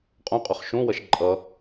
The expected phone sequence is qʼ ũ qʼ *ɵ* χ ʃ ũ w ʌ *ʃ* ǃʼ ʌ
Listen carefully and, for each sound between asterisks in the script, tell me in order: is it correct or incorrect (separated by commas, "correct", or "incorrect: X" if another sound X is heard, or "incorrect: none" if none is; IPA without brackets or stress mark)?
correct, correct